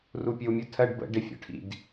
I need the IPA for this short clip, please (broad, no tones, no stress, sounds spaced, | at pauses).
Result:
r u pʲ ə w mʲ u tʰ ɜ ɖ b ə̰ ɖ ɪ fʲ ɔ̰ ʈʰ ḭ d